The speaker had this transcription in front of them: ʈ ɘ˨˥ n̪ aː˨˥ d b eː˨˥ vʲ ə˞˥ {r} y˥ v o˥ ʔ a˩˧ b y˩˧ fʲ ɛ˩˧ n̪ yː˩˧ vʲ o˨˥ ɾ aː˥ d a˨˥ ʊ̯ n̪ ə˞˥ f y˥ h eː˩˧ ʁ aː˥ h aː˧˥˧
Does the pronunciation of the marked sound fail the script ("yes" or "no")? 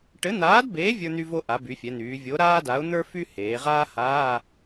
yes